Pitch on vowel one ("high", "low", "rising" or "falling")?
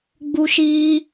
high